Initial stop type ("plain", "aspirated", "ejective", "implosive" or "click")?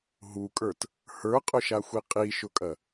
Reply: ejective